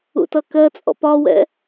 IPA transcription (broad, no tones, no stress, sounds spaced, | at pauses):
ṵ t ʌ k ɜ t͡sʼ ɔ̰ p ɒ w ɛ̰